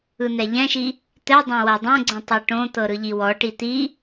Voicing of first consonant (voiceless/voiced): voiced